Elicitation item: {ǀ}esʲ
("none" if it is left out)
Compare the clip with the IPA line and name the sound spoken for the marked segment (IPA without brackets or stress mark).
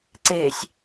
ǀ